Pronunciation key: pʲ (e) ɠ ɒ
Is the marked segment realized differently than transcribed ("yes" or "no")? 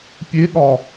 no